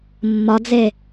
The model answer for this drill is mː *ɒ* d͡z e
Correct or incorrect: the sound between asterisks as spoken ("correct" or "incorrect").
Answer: correct